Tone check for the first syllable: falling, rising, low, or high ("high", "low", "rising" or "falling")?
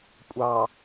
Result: low